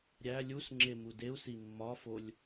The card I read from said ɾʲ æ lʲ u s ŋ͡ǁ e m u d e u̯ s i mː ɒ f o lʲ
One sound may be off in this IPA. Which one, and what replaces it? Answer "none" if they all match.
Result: none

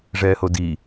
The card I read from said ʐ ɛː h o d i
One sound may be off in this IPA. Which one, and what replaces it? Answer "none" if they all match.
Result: none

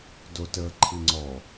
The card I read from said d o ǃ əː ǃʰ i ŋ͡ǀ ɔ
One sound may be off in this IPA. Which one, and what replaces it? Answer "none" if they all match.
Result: ǃ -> t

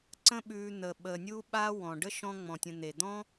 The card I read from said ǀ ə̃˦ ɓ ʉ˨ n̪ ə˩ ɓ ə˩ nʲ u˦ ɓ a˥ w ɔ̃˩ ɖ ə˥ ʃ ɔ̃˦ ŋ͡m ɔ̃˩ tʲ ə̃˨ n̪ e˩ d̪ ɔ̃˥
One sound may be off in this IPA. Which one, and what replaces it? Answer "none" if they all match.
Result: none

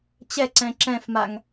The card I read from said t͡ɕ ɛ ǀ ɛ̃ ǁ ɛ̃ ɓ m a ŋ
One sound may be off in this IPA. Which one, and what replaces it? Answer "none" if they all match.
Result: ɓ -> f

